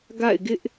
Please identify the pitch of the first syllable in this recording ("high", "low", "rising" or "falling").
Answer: falling